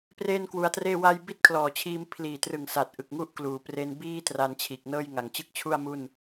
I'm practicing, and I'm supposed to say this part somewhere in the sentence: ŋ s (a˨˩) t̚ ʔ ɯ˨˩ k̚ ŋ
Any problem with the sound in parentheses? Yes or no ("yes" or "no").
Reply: no